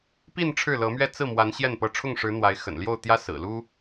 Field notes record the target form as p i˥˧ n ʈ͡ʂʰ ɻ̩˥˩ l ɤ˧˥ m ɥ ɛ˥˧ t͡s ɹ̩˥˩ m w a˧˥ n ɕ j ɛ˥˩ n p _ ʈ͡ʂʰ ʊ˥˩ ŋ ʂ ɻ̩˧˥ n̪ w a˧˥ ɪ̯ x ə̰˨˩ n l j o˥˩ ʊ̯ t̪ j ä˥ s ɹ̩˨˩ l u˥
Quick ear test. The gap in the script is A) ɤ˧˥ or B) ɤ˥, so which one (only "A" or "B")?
A